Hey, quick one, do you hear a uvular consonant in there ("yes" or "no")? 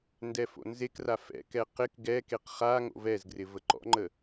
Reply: yes